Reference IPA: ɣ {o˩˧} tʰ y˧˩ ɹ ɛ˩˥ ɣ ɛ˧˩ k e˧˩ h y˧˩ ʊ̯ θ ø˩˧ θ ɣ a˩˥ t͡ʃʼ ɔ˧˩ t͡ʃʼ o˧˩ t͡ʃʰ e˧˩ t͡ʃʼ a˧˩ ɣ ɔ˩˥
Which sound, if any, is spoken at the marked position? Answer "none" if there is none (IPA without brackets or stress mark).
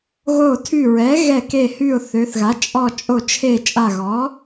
o˧˩